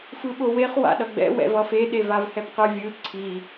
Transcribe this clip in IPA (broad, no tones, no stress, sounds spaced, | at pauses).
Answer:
f ɯ ɓ o w e χ w a̰ ɗ ʌ ɡ͡b ɛ̰ w ɛ̰ v ʌ f e ɗ e v a v h ɛ p q ɯ vʲ ɯ ǀʰ i